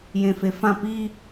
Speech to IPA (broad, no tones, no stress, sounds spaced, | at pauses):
j ẽ f e f ã p i